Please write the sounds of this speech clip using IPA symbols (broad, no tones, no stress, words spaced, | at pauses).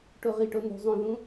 ʈoʁiʈo nṳzˤũðũ